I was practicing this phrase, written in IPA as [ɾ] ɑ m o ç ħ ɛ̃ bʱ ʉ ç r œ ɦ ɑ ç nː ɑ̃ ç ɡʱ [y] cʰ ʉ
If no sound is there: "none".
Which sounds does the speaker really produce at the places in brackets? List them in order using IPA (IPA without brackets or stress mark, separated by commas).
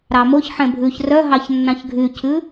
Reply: ɾ, y